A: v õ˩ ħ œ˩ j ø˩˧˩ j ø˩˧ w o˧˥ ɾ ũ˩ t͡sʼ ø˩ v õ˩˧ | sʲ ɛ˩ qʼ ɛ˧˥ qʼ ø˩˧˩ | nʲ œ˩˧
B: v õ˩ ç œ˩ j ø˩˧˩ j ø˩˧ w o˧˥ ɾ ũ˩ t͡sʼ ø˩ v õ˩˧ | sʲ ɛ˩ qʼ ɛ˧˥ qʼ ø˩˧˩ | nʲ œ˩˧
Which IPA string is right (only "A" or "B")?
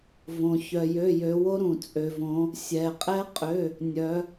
B